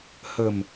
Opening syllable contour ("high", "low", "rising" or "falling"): low